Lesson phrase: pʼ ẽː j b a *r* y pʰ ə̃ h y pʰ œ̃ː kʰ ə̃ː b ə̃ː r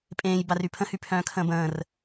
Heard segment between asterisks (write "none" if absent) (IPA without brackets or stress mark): r